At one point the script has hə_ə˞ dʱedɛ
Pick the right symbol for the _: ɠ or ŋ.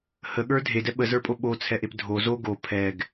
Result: ɠ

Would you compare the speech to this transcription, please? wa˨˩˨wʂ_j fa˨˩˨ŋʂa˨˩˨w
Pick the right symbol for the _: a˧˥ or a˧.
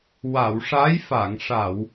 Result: a˧˥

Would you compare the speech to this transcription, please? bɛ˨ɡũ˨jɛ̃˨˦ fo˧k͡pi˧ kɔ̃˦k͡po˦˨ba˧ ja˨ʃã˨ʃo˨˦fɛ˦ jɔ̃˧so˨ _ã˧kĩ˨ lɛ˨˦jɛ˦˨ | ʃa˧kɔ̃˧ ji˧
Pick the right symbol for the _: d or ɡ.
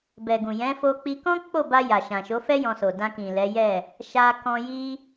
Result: d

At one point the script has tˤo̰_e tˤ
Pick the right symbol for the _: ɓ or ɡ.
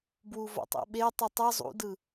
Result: ɓ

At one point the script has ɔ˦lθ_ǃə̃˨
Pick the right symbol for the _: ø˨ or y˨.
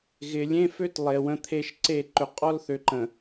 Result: ø˨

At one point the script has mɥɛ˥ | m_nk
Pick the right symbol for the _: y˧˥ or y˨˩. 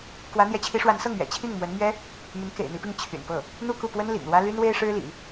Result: y˧˥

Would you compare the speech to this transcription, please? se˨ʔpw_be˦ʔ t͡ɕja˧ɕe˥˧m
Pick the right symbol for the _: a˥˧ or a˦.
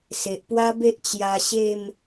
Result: a˦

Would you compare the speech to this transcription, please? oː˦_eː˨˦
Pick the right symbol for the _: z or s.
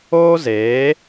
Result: z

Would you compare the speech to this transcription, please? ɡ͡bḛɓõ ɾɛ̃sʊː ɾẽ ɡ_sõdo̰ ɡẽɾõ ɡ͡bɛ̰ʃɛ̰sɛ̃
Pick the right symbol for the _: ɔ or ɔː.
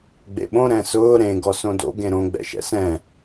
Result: ɔ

